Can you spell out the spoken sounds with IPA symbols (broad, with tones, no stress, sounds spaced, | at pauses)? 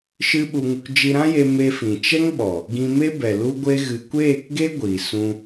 ʃ ɨ˦ ɓ u˧ ŋ u˧ k d͡ʒ i˧ ɾ ã˦ j e˧ m e˧ f ĩ˨ t͡ʃ ɛ˦ ŋ ɓ ɔ˨ | ɡ ĩ˧ m e˦ b ɛ˨ l u˦ ɡʷ e˦ ɣ ɨ˧ kʷ eː˦˨ k ɡ e˦ ɡʷ i˨ s ũ˧